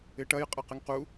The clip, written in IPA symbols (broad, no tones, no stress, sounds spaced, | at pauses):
ɪ ʈ ɐ j qʼ ɐ q ɪ ŋ q u